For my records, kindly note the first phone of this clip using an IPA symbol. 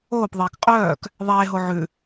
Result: oː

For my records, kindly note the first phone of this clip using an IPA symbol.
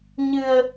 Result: ɲ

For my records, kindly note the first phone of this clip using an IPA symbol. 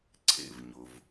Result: ǀʰ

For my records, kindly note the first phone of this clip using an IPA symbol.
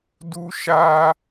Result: d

